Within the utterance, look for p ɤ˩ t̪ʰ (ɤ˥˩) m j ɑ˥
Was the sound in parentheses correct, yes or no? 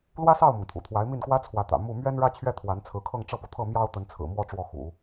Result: yes